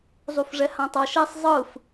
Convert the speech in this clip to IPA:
zˤ u f ʐ ɛ h ã tˤ ʌ ʃ ɛ sˤ zˤ ɯ f

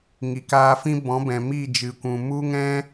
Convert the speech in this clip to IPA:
ŋ i˨ k aː˧ f ĩ˦ b ɔ̃˨˦ b ɛ̃˨ m i˦˨ d͡ʒ ɨ˨ kʷ ũ˨ m u˦ ŋ ɛ̃˦

